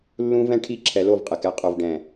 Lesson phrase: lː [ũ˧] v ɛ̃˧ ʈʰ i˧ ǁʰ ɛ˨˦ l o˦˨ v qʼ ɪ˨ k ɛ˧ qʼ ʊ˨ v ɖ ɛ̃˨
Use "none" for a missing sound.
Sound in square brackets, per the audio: ũ˧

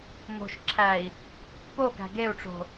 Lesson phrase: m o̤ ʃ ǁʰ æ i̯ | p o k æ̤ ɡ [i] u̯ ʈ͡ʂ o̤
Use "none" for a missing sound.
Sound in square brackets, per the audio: e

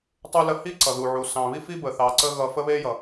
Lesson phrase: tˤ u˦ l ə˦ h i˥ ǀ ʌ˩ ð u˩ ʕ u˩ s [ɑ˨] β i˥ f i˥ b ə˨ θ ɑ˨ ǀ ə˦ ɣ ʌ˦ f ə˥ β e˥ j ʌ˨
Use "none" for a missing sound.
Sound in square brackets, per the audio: ɑ̃˨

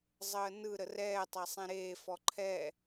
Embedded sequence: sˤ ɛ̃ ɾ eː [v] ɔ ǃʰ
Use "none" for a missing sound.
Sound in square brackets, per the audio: f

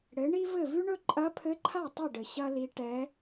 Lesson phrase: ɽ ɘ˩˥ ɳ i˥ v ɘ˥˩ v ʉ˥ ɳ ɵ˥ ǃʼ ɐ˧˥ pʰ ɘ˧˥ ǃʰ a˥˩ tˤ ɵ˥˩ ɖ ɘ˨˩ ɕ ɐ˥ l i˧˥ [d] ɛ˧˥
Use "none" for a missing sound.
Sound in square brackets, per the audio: ʈ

